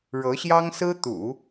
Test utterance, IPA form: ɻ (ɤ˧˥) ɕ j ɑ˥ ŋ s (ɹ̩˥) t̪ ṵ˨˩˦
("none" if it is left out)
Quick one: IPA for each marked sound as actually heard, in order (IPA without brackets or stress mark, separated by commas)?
ɤ˧˥, ɹ̩˥